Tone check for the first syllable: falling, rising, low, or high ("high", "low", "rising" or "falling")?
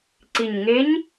low